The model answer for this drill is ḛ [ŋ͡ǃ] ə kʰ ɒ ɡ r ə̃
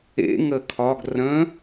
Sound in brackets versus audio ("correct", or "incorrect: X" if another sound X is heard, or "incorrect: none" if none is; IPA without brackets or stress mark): incorrect: ŋ